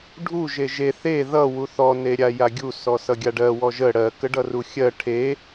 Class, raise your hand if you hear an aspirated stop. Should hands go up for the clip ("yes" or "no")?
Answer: yes